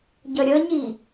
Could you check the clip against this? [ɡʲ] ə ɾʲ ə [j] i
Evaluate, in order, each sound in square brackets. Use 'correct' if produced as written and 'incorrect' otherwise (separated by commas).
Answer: incorrect, incorrect